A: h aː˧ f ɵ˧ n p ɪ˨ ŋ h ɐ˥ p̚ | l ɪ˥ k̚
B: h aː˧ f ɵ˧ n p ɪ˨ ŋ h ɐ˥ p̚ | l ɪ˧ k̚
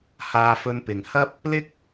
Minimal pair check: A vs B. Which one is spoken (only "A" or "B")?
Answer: A